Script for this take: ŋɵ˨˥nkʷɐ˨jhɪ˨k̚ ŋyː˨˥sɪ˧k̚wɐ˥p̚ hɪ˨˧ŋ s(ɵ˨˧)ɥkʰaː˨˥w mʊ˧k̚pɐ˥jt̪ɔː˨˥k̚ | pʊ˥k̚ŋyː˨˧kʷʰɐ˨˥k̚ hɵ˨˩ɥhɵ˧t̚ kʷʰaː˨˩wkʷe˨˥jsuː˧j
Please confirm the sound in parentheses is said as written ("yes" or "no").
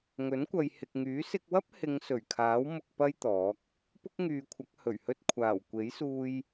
no